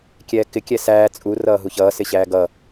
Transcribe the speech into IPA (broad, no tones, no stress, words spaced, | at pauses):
kʲɛːkɪ kʲɛsæː t͡sʼu rʌːɦuçʌː sɪɕæːɡʌ